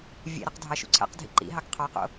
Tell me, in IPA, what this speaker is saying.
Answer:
vʲḛɾɯq dʱɑʃṵǀʰæ̰qdʱḭ ǃḭɦɑk qʰɑqo̰

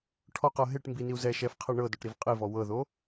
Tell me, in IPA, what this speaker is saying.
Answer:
ʈʰɔqɤ ɦeʈ mbiniu̯ zɛ ʃɛfqʰɛ ɳɤdɔʈɾiv qʼivɔ wɤðo

